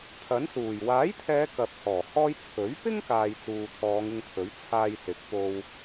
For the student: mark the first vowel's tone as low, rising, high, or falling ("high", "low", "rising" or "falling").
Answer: rising